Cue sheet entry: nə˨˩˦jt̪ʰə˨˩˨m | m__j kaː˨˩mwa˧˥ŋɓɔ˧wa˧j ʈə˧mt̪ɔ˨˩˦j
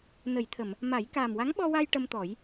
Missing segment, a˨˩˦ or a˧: a˨˩˦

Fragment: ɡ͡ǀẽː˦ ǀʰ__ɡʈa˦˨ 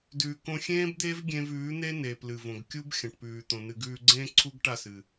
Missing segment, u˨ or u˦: u˦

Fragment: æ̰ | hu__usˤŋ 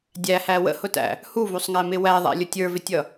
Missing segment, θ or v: v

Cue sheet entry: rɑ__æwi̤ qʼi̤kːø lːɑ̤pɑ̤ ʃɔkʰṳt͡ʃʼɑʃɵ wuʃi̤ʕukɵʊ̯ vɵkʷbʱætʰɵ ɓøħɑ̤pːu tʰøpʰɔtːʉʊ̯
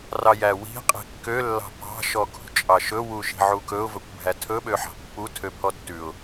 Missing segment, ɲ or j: j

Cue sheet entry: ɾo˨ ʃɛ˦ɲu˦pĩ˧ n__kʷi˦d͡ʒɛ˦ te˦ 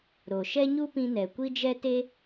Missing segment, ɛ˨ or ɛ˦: ɛ˨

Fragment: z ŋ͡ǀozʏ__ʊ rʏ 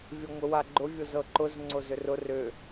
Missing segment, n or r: r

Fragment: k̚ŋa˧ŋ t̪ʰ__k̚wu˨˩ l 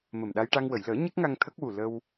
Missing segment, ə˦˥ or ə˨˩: ə˦˥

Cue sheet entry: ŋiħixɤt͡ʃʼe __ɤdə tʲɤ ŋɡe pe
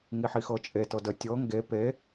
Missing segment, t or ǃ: t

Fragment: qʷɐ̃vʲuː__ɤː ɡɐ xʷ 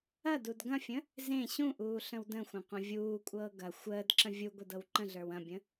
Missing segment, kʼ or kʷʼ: kʷʼ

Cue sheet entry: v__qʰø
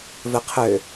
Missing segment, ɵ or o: ɵ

